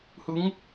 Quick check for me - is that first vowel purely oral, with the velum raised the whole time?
yes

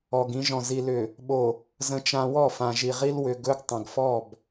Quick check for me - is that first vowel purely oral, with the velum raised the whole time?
yes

